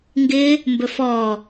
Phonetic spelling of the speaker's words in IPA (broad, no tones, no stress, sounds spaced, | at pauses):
ŋ ɡ ɪ | m b ɵ f ɔ